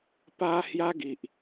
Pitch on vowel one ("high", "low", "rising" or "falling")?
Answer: high